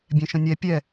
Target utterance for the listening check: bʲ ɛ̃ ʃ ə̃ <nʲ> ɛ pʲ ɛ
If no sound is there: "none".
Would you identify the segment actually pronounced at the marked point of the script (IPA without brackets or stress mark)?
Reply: nʲ